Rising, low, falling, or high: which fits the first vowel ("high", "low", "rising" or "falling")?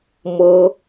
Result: high